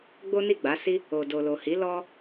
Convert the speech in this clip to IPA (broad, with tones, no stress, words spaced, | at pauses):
ɡ͡bo˦ni˦˨ɡ͡ba˨˦si˦ | o˨do˨lo˨hi˨˦ lɔ˦